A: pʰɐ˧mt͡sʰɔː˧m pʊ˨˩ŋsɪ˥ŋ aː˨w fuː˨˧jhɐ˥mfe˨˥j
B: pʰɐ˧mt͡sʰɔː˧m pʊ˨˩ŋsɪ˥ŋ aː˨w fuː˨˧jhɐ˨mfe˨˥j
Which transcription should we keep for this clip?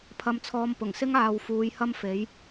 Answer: A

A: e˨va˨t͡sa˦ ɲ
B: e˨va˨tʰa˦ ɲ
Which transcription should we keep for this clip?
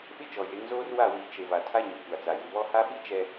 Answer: B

